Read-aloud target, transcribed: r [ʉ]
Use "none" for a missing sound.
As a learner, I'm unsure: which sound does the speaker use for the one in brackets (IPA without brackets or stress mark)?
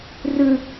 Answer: ʉ